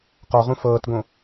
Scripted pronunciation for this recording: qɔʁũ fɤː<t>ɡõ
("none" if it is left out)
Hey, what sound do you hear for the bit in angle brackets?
t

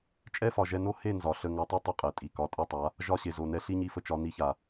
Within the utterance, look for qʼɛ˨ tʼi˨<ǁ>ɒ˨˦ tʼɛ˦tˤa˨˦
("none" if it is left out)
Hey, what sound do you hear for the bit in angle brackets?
k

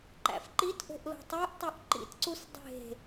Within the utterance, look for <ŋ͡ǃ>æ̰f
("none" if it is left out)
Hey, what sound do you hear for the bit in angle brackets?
ǃ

